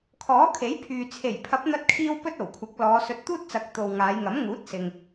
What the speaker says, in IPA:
kʰ ɔː˨˥ kʰ e˨˥ j pʰ yː˨ t͡sʰ e˨˩ j pʰ ɐ˨˥ p̚ n̪ ɐ˧ t̚ kʰ iː˧ w p ɵ˥ t̚ o˨˩ w kʷʰ ɐ˨˥ k̚ l ɔː˨˧ s ɵ˧ t̚ t̪ uː˥ t̚ t͡s ɐ˨˥ k̚ t̪ o˨ w ŋ aː˨˧ j ŋ ɐ˨˥ m ŋ uː˨˥ t̚ s ɪ˨ ŋ

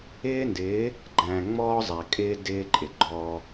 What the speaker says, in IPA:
ɪː˦ n d ɪː˨˦ | ɡ͡ǃ æ̃ː˨ ŋ͡m ɔː˦ zˤ æ˨ kʼ ɪː˦ d ɪː˦ ǃʼ ɪ˨ ɡ͡ǃ ɔː˦

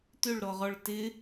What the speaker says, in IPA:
t ʏ ɭ ɾ ɔ ʁ ɔ ɭ t ɪ

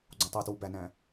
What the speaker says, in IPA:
ɡ͡ǀ õ tˤ e t w u b æ n æ̃

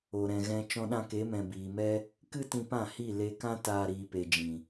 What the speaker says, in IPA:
o˨ ɾ ɛ̃˨ ɣ ɛ̃˧ t͡ʃ ɔ̃˧ ɗ ã˧ k e˨˦ m ɛ̃˨ b iː˨ m ɛ˦ | k ɨ˦ t ĩ˧ p ã˦˨ h i˦˨ l e˧ k ã˦ t aː˦ ɾ iː˧ p e˧ d͡ʒ ĩ˨

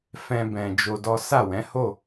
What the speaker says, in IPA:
f ɛ̃˧ b ɛ̃˨ d͡ʒ o˧ d ɔ˦ s a˦˨ w ɛ̃˨˦ h o˦˨

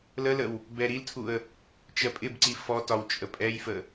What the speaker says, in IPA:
l ə l ə w | b ɛ ɾ i l tʰ u ə̯ | t͡ʃ ɜ pʼ ɪ b ǀ i f ɔ t ɒ w t͡ʃʼ ə pʼ ɛ j f ə

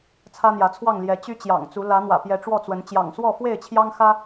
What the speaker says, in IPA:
t͡sʰ ä˦ n̪ j ä˨˦ t͡sʰ w ɑ˥˨ ŋ l j ɛ˨˦ t͡ɕ y˦ t͡ɕ j ɑ̰˨˩ ŋ t͡s u˨˦ l ä˨˦ n̪ w ä̰˨˩ p j ɛ˨˦ ʈ͡ʂ w ɔ˥˨ t͡s w ə˨˦ n t͡ɕ j ɑ̰˨˩ ŋ s w ɔ˥˨ f w e˥˨ ɪ̯ t͡ɕʰ j ɑ˦ ŋ x ä˦

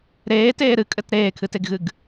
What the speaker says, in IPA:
ɾ eː t eː ɾ ɨ kʼ ɘ t ɾ eː kʰ ɨ t e ɡ ɣ ɨ ɡ

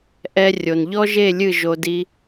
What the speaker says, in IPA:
ʔ ɛ˧ rʲ o˨ n ʎ ɔ˦ ʒ e˦˨ lʲ ɨ˦˨ ʒ o˧ d i˧

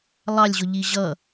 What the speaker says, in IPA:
lˠ ɑ lʲ ʑ ʊ ʎ i ʑ ʌ

